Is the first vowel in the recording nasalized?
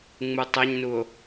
no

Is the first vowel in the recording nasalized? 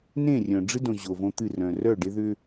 yes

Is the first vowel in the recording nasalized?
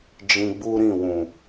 yes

